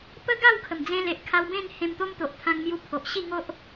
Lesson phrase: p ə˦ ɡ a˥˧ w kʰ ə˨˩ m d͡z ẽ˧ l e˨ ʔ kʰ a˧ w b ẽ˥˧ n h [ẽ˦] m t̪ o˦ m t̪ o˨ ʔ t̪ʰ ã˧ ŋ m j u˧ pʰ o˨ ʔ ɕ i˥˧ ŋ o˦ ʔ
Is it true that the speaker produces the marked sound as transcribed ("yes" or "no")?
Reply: no